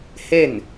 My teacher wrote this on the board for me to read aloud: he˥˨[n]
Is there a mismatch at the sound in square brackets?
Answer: no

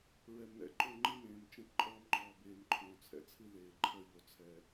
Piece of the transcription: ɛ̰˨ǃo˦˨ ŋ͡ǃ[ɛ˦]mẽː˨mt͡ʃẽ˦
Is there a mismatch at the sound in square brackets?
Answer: yes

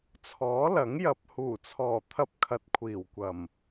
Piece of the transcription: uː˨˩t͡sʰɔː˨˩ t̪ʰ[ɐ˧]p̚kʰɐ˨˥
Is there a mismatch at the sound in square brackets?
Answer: no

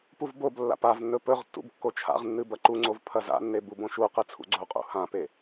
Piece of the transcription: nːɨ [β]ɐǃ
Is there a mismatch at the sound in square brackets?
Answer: yes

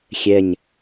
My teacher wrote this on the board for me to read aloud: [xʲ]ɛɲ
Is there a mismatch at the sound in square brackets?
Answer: no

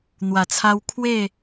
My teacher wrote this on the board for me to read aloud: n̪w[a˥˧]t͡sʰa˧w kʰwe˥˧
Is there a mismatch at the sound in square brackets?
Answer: yes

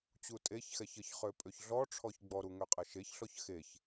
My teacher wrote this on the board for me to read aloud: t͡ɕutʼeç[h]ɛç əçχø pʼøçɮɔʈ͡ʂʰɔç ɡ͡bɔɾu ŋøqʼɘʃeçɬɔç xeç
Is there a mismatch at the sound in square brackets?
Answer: yes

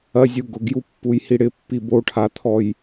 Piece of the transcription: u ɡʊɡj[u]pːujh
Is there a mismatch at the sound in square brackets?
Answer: no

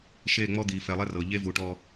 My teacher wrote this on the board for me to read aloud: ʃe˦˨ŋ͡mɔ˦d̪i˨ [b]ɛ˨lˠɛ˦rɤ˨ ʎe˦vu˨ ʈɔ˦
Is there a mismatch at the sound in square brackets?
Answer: yes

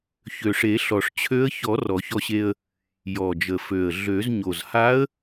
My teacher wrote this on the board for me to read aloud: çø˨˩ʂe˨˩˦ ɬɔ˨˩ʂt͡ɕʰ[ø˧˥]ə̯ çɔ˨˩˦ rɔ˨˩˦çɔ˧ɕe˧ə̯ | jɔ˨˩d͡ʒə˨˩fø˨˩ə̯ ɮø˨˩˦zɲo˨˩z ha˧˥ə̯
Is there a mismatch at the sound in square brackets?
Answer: no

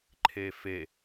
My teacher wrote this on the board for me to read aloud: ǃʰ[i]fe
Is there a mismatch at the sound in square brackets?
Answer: yes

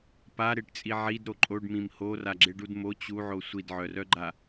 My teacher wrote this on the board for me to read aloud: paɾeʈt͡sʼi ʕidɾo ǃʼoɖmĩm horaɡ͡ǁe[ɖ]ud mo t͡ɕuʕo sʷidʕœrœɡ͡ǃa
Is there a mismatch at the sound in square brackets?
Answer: no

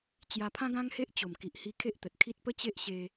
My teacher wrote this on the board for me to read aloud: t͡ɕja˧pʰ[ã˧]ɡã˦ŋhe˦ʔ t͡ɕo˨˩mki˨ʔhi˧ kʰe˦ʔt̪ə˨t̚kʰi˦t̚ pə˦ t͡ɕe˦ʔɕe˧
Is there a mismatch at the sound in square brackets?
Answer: yes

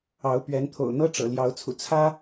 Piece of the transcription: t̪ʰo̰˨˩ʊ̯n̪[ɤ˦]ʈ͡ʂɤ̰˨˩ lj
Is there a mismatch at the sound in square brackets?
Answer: no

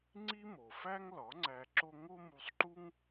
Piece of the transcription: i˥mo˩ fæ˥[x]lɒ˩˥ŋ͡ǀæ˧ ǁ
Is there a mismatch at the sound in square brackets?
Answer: yes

